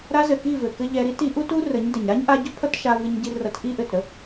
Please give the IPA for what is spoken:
ɾa˧zɘ˨ ki˦˨vɘ˨ kɘ˦ʎɛ˧ɾi˦t i˨˦ʔu˦tu˦ rə˨˦ɲdɘ˨ɲ ɾa˦ɲʔa˧ɟɵ˦ pʰʌ˦tʃa˧vɨ˧ɲɟi˧ rʌ˧tʔi˦ʔɘ˨tɾə˦

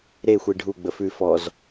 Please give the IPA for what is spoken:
ɾexʷi ɖʱu ɡ͡bəfʉ fɔz

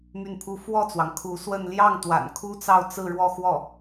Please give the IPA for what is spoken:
my˥˩npʰu˥ fwɔ˥˩t͡swɑ˩ŋ kʰu˧˥ swə˥˧n ljɑ˥˩ŋt̪wa̰˨˩n kʰu˥t͡sɑ˥˧ʊ̯ t͡sɹ̩˥˧ɻwɔ˥˧xwɔ˥˩

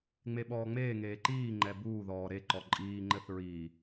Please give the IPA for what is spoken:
ŋ͡meɓɔːŋ͡meːŋeː ǃiːŋ͡ǃɛ buːðɔː ɾeǃɔ ǃʼiːŋ͡ǃɘθ ɹi

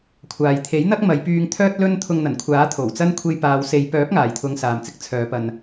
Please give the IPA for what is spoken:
kʷʰaː˨jt̪ʰe˨˥jn̪ɐ˥k̚mɐ˨˧j pyː˧ŋt̪ʰœː˥t̚ lɵ˥nt̪ʰʊ˧ŋn̪ɐ˨˩nkʷʰaː˨˥ t̪ʰo˨˩wt͡sɐ˥n kʷʰe˧jpaː˨˧w se˨˧jpœː˨˥p̚ ŋaː˨jt̪ʰʊ˧ŋ saː˨mt͡sɪ˨˥k̚ t͡sʰœː˨˧ pɐ˧n

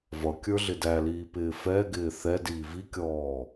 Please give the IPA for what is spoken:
vʌkʲə˞ɮɪ dæliːpɪː fɛɡɪː θɛdiː vikʲɔː

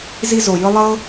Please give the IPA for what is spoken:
zi˧zo˨jɯ˧ lˠɤ˧

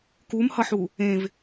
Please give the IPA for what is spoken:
kumhʌħu | ẽv

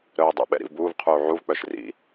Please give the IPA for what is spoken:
ɾœːdˤɛ̰ɓɛ̰ ɾḭvbuːvqʰuː ʕuvk͡pœʃ rḭ

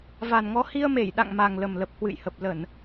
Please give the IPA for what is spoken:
va˨˩nŋɔ˨˦ hi˧ə̯me˧˩j ɗa̰˧˨ŋma˨˩ŋ lə˨˩mlə˨˩p̚hwɨ̰˧˨jhə˨˩p̚ lə˧˩˨n

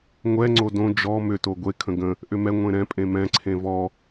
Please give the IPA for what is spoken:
ŋʷɛ ŋ͡ǀodõ d͡ʒɔ mʏ toɡʷe kʰə̃ɡə̃ | ʔʏmɛ ŋʷẽɾɛ̃ pʼẽmɛ̃ ǀʰẽvɔ

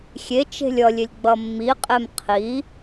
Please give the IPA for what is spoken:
xʲet͡ʃe̤lʲ ʌlʲelʲ ɡ͡bʌmːiqʼem qʰi

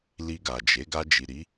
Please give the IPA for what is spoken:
li˧ɡa˨d͡ʒe˨˦ ɡa˧d͡ʒi˨ɾi˨˦

